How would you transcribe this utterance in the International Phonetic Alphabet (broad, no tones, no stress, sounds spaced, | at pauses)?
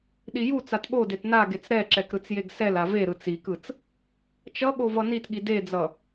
ɗ i j u t͡s a t ɠ o d e t n a ɡ e t͡s ɾ ɛ ǁ ɛ k ɾ ɯ t͡s j e ɡ s ɛ l a v e ɾ ɯ t͡s i k ɯ t͡s | t͡ʃ ʌ ɠ o v ʌ n i t ɠ i d e d͡z ʌ